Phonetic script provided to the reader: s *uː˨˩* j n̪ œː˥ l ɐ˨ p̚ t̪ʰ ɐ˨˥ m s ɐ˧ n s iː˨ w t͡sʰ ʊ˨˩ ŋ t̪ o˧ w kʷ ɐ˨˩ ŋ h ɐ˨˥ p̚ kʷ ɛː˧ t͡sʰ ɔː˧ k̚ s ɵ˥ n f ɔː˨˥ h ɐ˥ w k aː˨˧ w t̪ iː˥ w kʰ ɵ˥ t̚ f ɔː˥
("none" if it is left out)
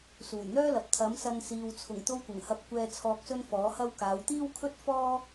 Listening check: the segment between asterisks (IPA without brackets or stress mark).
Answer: uː˨˩